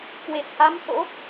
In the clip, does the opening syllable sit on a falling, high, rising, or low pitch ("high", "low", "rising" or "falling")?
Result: low